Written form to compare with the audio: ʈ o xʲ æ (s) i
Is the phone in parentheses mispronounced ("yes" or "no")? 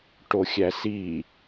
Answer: no